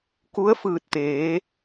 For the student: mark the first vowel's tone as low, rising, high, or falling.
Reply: rising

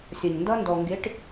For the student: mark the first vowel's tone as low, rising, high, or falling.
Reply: low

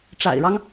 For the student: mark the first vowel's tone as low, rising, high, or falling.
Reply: low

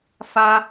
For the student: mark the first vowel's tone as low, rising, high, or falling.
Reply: high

